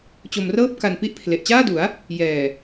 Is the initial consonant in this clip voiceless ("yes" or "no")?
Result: yes